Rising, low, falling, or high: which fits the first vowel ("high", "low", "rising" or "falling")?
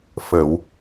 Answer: low